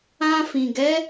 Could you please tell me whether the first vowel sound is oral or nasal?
nasal